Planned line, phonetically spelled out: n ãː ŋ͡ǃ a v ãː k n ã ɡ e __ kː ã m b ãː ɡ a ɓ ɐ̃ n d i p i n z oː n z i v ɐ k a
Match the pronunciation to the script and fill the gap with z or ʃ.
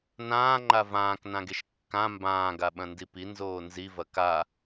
ʃ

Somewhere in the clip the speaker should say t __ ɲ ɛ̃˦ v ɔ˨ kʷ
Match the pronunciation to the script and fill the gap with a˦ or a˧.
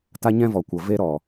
a˦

